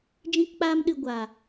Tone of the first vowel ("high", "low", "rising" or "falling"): high